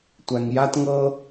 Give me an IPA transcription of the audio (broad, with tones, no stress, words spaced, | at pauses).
tʷæ˨ŋja˦t ŋɤ˧